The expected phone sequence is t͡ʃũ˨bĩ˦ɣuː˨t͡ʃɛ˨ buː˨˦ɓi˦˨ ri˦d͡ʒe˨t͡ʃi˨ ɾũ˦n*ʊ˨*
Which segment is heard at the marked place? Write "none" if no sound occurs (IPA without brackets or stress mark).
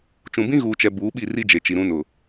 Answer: ʊ˨